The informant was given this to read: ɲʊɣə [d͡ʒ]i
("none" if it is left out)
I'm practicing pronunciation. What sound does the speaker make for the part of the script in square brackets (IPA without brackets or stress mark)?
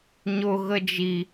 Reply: d͡ʒ